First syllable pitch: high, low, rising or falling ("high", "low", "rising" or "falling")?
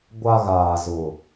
low